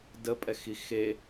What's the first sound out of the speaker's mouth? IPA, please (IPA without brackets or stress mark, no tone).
d